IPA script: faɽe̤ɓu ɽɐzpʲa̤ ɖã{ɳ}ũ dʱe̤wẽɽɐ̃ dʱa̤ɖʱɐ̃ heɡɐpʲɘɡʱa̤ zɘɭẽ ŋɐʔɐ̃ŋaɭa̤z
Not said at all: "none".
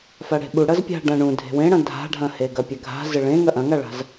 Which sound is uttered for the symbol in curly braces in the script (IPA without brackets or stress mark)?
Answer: ɳ